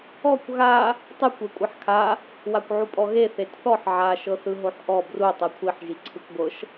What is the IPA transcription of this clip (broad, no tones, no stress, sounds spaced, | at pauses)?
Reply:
ɔ kʷ ɣ a | tˤ ɯ kʷ e kʷʼ a ħ kʰ a | w a kʷ ʕ u pʼ ɔ ɣ e θ e t θ ɔ ħ ʕ a ʃ ɤ θ ɯ ɦ o ħ ʔ ɔ b r u tˤ ɤ kʷʰ i ħ ʒ i ǀʰ ɯ kʷ ɡʷ ɤ ʃ